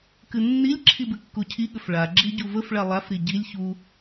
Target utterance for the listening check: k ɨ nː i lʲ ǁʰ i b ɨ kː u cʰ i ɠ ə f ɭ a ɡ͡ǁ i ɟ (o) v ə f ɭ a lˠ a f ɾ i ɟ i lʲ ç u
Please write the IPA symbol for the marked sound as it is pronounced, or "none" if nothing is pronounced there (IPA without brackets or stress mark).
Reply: u